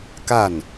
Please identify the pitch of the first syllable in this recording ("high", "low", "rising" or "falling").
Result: falling